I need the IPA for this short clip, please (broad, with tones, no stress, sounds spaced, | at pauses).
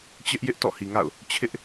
t͡ɕ ɪ˦ ʔ j ɪ˦ ʔ t ɔ̰˦˨ h i˨ ŋ a̰˦˨ ʊ̯ | t͡ɕʰ ɪ˦ ʔ